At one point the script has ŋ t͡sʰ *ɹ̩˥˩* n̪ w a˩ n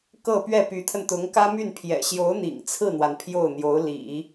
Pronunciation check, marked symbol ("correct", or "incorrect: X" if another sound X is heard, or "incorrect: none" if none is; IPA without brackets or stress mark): correct